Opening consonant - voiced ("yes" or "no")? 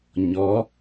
yes